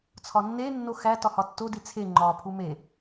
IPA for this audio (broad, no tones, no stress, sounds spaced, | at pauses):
t͡sʰ ɒ nː e nː o x æ t ɒ h ɒ tː o d i t͡sʰ e ŋ͡ǃ ɒ pʰ u m e